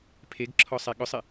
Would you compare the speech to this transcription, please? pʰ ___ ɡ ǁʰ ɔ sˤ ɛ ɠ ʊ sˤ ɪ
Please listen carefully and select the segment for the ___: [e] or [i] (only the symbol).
e